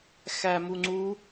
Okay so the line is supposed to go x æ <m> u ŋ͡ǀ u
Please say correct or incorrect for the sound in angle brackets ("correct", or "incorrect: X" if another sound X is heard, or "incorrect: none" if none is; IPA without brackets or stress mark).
correct